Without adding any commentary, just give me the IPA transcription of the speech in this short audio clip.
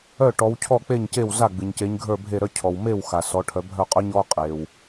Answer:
œ˥˩ ʈ ɔ˨˦ w cʰ ɔ˥˩ k͡p e˥˩ ɲ c e˥˩ w z a˥˩ ɡ͡b ɨ˩ ɲ c e˨˦ ɲ ɡʱ ə˞˥˩ bʱ e˥˩ ɾ œ˥ cʰ ɔ˩ w m e˥˩ w x a˩ s ɔ˨˦ ʈʰ œ˨˦ bʱ œ˥˩ qʼ œ˥ ɲ ɔ˥ qʼ e˩ w

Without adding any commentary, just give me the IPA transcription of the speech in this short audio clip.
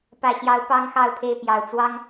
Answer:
p ä˨˩ ɕ j ɑ˨˦ ʊ̯ p ɑ˦ ŋ x ɑ˥˨ ʊ̯ pʰ e˥˨ ɪ̯ p j ɑ˨˩ ʊ̯ t͡s w ɑ˦ ŋ

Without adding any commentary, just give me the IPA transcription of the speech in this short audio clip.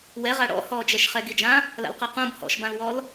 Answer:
w ɛ ʁ a ɽ ɔ̰ h ɔː d͡ʒ ɛ ʃ χ ɛ ɡ i d͡ʒ ã | l a̰ l q ɛ q ũ b h ɔ̰ ʃ b ã l w ɔ l

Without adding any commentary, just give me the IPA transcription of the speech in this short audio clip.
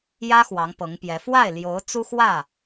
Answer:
j ä˥ x w ɑ˧˥ ŋ p ɤ˧˥ ŋ p j ɛ˧˥ f w a˥˩ ɪ̯ l j o˧˥ ʊ̯ t͡s u˥ x w ä˥˩

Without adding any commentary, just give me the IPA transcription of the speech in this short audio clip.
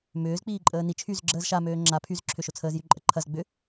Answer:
m ʏː z k͡p iː ǃʼ əː n i t͡ʃʰ y z ɡ͡ǁ əː z ʃ a m øː ŋ͡ǁ a pʰ y z ǁʰ ʏ ʃ ʊ t͡sʰ əː z j y ǃʼ ə ǃʰ ɐ z ɡ͡b ʏ

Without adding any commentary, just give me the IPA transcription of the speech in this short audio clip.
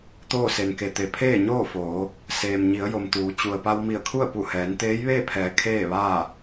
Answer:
t̪ oː˥˨ s e˩ n k e˩ t̪ e˩ pʰ eː˥˨ ɲ oː˥˨ f oː˩˧ | s eː˩ m ɲ i˩˧ ə̯ j o˩ m t̪ uː˩˧ t͡ɕ u˩ ə̯ p a˧ w m i˧˩ ə̯ kʰ u˥˨ ə̯ p u˧˩ h ɛː˩˧ n t̪ eː˧˥ j ʋ eː˥˨ pʰ ɛː˩˧ kʰ eː˥˨ ʋ aː˥˨

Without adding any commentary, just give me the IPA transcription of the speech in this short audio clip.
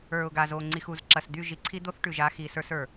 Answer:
ə˞˨ ʊ̯ ɡ a˨ z o˨ ŋ͡ǀ i˨ x u˨ z ǁ ɐ˨ s d̪ y˦˨ ʒ i˨ ǀʰ i˦ d̪ o˦ θ ʈ ʉ˨ ʒ a˦ x i˨ s ə˞˦ s ə˞˨

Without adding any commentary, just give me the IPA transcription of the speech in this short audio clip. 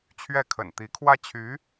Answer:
t͡ɕʰ ɥ ɛ˥˩ kʰ ə̰˨˩ n t̪ i˧˥ kʰ w ä˥ t͡ɕʰ y˧˥

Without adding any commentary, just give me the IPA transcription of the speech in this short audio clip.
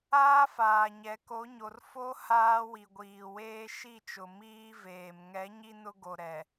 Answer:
aː˦ f aː˨ ɲ ɛ˨˦ k o˨˦ ɲ o˨ r f o˦ h aː˦ w i˨ ɡʷ iː˨ w eː˦ ʃ i˦˨ t͡ʃ ʊ˨ m iː˦ v eː˨ m ŋ ɛ˨˦ ɲ i˦ n ʊ˦ ɡ o˨ ɾ ɛ˨

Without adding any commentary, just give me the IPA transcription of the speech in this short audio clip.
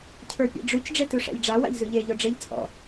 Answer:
cʰ ə˞ pʲ ḛ ɖ͡ʐ ʉ c ɖ͡ʐ e t ʉ ʂ a̰ ʎ ɖ͡ʐ a w a̰ ʎ z ʉ ʎ e ʎ ɔ ɖ͡ʐ e ʎ t͡sʼ ɔ̰

